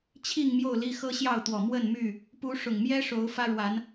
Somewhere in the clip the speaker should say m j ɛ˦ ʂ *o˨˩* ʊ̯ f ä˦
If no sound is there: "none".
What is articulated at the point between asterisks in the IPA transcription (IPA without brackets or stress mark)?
o˨˦